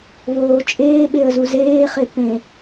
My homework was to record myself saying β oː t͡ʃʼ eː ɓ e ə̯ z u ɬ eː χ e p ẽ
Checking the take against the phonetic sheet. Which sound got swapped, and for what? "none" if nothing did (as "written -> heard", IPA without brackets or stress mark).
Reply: ɬ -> z